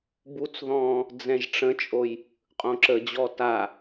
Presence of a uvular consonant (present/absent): present